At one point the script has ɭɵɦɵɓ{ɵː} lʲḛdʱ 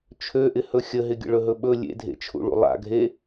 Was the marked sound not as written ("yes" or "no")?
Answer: yes